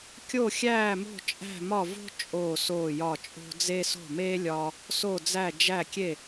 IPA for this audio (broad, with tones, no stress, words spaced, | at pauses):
kʲo˥˩xʲæː˥˩mo̤˥˩ t͡ʃʼæ̤˥˩mɒ˥˩vo̤˥ t͡ʃʼoː˥˩soː˥˩jɒ˥˩t͡ʃʼo̤˥ d͡ze˥ so̤˥˩meː˥ lʲɒː˥ | so˥˩d͡zæ˥˩ d͡ʒæ˥˩kʲe˥˩